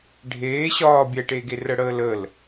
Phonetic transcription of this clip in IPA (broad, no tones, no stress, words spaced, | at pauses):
ɖʱeː ɕɒː bʲɛʈeɡe rəɽəːləl